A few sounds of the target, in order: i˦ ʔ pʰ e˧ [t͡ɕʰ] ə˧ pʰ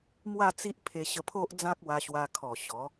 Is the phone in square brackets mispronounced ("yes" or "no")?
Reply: yes